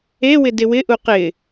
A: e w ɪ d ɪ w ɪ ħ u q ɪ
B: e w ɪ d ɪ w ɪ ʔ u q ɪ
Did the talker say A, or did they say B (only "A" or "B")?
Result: B